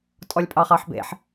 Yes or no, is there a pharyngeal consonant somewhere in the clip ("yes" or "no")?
yes